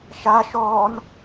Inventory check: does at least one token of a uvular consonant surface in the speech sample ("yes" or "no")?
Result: no